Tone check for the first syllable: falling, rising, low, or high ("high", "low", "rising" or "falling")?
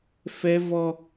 high